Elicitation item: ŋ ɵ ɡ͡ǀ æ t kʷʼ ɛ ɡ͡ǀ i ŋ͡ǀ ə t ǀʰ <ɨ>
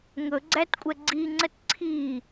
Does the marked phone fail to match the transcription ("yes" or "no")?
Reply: yes